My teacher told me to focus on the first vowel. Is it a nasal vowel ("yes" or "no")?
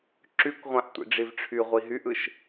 no